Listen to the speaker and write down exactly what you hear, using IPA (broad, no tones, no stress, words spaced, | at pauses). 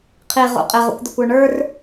qʰiʁṵ qʼɪʁṵkʷd̪ɪkʷə˞ ɳə˞r